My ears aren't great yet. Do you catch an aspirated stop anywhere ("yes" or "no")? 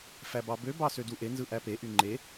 no